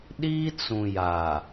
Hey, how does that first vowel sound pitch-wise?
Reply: high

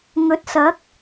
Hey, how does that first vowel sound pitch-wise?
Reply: rising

